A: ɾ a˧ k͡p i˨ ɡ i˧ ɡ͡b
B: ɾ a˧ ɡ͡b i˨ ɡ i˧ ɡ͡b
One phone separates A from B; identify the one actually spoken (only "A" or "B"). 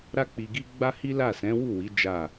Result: A